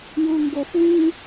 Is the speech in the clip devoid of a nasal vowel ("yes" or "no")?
no